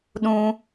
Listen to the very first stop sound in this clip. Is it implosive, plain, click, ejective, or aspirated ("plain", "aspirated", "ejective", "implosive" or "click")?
implosive